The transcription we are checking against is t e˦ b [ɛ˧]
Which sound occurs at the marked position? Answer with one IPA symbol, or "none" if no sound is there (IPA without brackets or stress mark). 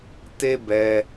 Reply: ɛ˧